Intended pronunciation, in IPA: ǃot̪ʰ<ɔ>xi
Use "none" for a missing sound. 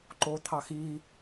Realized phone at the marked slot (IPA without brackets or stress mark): ɑ